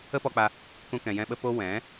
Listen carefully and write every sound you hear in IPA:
ə˦ p ɔ˧ k͡p a˧ | k ũ˦ k ɛ̃˧ j ɛ̃˦ ɓ ə˦ p o˦ w ɛ̃˨˦

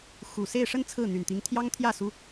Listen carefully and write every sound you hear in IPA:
x u˨˩ s e˥˧ ɪ̯ ʂ ə˥˧ n t͡sʰ ɹ̩˥˩ n̪ y˨˩ n t̪ i˧˥ ŋ t̪ʰ j ɑ˥ ŋ t̪ʰ j ä˥˩ s u˥

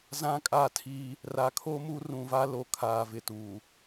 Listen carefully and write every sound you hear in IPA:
z ã˦ kʼ a˦˨ tʰ i˦ | r a˨˦ kʰ o˦ m u˦ r ũ˨ v a˦ l o˨ kʰ aː˨ v ɪ˨ t u˨

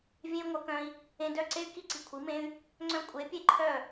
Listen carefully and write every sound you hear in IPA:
vʲ ẽ˦ y̯ ŋʷ œ˧ k œ̃˧ i̯ | ẽ˧ d œ˦˨ ǀ e˦ y̯ k i˦ ǀ i˨ kʷʰ i˨˦ m ẽ˦ y̯ | ŋ͡ǀ œ̃˦ kʷʼ e˨˦ pʲ e˦ ǃʰ œ˦˨

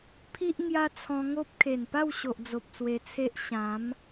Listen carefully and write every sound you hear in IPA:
pʰ i˦ ʔ ŋ j a˦ t͡sʰ ɔ̃˧ ŋ o˦ p̚ kʰ e˨˩ n p a˥˧ w ɕ o˨ ʔ d͡z o˨ p̚ s w e˧ t͡sʰ e˦ ʔ ɕ ã˨˦ m

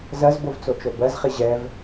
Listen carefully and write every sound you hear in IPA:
z ɜ z b o v t͡s o t͡ʃ o b ɜ z χ i ʑ ɛ v

